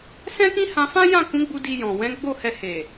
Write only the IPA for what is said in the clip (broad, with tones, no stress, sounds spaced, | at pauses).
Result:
s ɛ̃˦ k ĩ˦ h ã˧ f ã˦ j ã˦˨ k ũ˨˦ ɡ͡b u˧ d i˧ j ɔ̃˨ w ɛ̃˨˦ ɡ͡b o˦˨ h ɛ˧ h e˨